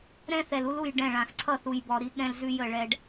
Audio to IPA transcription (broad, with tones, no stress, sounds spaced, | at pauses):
ɾ ɛ̃˦ θ ɛ˨ l u˦ l u˦˨ j ɖ ɛ̃˦˨ ɭ ã˨ x ǀʰ ʌ˦˨ θ u˨ j b ɔ˨ ɾ i˦ ɠ ɛ̃˦ l z ʉ˦ j ə˦˨ ɭ ɛ˦ ɖ